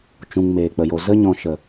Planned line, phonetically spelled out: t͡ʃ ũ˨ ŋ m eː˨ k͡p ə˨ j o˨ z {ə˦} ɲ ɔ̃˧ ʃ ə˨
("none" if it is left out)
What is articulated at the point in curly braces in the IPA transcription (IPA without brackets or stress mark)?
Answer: ə˦